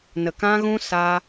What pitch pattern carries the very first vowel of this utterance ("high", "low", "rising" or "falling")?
low